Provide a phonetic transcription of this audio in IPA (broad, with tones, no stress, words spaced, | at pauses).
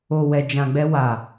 o˨wɛ˨d͡ʒã˨ɡ͡bɛ˧ wa˨